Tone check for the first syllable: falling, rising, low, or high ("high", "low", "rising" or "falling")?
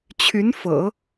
rising